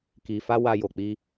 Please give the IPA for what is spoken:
k i˧ f a˦ w a˧ j o˧ k͡p i˧

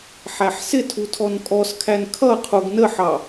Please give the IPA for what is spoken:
ħ æ ħ s ɪ tʰ u tʰ ɔ n kʼ ɔ s kʰ æ n kʰ ʌ qʰ u ɡ n ə ħ ɑ

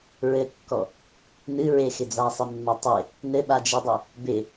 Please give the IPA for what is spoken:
ɹ ɘ kː ɔ | n ɨ ɹ e x ɪ d͡z a sˤ ɪ mː a tˤ e | n ɘ ɓ a d͡ʒ ɯ dˤ ɘ | b ɪ

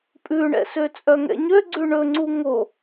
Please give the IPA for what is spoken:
pʼ ʉ ɳ ɛ̰ s ø t͡sʼ œ ŋ ɛ̰ ɲ ø ɡ͡ǀ ʉ ɳ ɵ ŋ͡ǀ u ŋ o

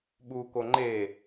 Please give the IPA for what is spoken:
ɓ uː k o ŋ͡ǃ e

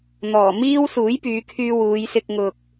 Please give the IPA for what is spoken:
n̪ ɔː˨˩ m iː˥ w s uː˨˥ j p yː˨˧ kʰ yː˧ w uː˨˧ j s ɪ˧ k̚ ŋ ʊ˨ k̚

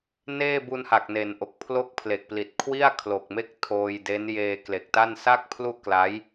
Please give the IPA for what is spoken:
n eː˥˩ b u˧ n h a˨˩ k̚ n e˩˦ n ʔ o˨˩ k̚ pʰ l o˥˩ k̚ pʰ l e˨˩ k̚ p l i˨˩ t̚ kʰ w i˥˩ a̯ kʰ l o˨˩ k̚ m e˥˩ k̚ tʰ oː˧ j d e˦˥ n j eː˧ k l e˨˩ k̚ t a˥˩ n s a˥˩ k̚ pʰ l u˥˩ ʔ k l a˦˥ j

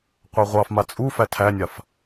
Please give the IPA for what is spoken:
qʷ a ʁʷ ɑ f m a t͡sʼ u f æ tʰ æ nʲ a f

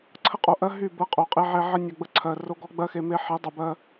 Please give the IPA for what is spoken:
ǀʰ ə˦ qʼ o˨ ʔ ɜ˦ ɦ y˦˨ b ɜ˦ qʼ o˨ qʼ e˦ ʕ e˦ ʕ ə˦ nʲ ɔ˨ ɡ͡b ə˦ ǀʰ ɜ˨ r o˦ ɡ ɔ˦ ɡ͡b ɜ˦ x e˨ m e˦ ħ e˨˦ dˤ e˨ b ɜ˦

